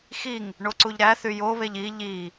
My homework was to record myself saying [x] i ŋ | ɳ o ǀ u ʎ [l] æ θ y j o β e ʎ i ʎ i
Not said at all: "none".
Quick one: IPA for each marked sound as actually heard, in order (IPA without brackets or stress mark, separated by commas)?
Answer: x, ɾ